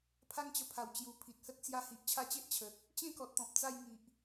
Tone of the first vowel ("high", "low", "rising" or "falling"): high